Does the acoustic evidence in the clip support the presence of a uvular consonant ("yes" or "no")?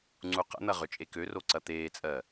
yes